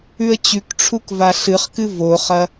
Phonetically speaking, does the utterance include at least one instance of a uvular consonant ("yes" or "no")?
yes